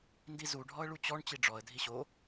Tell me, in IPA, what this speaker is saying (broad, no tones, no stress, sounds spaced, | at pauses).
n d i z u ɖʱ ɔ ə̯ ɭ u t͡ɕ ɔ ɳ t͡ɕ i ɖ͡ʐ ɔ ə̯ dʱ i ɕ o